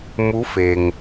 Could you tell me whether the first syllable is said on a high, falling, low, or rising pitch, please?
rising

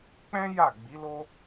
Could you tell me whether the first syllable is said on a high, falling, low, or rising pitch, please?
high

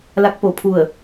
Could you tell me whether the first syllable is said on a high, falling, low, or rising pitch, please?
rising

